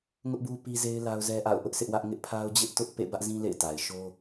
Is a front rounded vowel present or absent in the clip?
absent